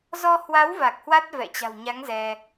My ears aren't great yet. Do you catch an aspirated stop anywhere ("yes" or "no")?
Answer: no